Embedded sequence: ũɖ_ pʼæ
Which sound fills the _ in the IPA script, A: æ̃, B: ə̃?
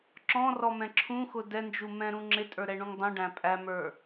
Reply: A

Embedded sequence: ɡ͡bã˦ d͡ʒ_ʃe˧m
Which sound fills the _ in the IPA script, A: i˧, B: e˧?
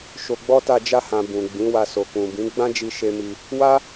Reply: A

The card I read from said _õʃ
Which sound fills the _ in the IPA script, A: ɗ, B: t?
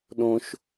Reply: A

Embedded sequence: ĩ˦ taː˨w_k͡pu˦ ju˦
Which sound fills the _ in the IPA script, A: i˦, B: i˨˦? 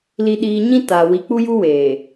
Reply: B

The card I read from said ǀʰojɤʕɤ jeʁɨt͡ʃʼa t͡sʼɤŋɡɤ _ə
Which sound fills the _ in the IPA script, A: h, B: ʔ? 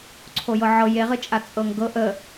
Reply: B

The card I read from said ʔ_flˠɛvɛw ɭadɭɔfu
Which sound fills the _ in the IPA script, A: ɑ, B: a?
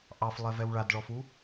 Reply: A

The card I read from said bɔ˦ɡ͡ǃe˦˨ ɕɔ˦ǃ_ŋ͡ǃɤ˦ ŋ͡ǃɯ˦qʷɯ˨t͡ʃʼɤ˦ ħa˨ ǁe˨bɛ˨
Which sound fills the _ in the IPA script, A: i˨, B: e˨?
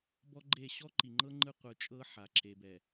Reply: A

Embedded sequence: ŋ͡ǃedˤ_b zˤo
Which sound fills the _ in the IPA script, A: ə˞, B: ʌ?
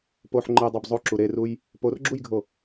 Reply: A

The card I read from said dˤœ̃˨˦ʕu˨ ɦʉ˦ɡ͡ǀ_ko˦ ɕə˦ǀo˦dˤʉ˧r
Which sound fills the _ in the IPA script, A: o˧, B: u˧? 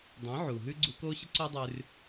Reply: B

